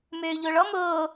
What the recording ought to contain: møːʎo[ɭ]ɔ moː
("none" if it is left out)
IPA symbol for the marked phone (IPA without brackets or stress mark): ɭ